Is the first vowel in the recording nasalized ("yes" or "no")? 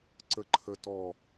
no